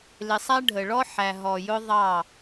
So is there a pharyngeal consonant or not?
yes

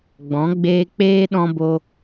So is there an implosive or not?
yes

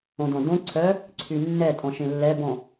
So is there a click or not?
yes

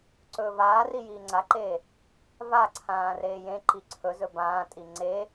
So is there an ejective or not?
yes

